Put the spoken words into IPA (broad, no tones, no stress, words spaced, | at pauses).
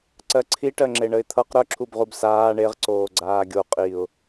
ǀɜǀʰiʈɜŋ͡ǁe ɳəɪ̯t̪ʰʌq ɾœǁʰubʁub saː ɳeʁǀoːɡ͡ǀaː ɡʲo qʼiʊ̯